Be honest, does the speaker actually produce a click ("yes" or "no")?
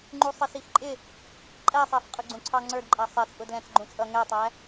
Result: yes